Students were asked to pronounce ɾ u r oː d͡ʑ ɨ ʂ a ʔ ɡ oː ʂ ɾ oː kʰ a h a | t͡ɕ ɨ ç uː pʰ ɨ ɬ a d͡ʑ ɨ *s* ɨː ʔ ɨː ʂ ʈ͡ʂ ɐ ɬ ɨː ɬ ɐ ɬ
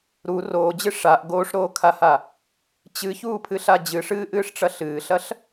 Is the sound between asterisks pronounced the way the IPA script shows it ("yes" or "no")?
no